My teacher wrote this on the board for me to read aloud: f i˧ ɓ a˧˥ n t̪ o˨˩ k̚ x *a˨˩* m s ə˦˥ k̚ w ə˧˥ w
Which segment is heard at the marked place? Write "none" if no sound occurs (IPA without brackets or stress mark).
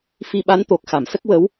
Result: a˨˩˨